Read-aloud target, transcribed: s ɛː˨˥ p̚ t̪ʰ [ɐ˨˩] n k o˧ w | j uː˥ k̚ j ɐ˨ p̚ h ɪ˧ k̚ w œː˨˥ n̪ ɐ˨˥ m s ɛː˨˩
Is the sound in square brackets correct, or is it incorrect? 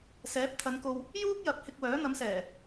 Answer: incorrect